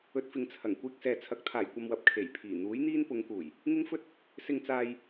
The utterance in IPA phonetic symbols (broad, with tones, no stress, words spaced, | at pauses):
ɵ˧t̚fɪ˨ŋt͡sʰɐ˨˩ŋ kʷiː˧k̚sɛː˨t͡sʰɐ˨k̚ t̪ʰaː˨˩jkʷɐ˨mwɐ˨p̚ kʰe˨˩jpʰiː˨˩ n̪uː˨˥jn̪iː˥n pʊ˨˧ŋkuː˨˩j | ŋɪ˥ŋfɵ˥t̚ | sɪ˨ŋt͡saː˨j